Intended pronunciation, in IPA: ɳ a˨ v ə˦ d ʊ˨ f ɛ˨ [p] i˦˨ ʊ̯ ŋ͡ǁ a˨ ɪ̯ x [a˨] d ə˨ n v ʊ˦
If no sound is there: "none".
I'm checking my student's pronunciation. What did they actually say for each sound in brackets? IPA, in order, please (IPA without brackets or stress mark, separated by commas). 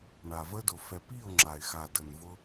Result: p, a˨